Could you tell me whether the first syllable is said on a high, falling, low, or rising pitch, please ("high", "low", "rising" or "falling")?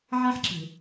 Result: high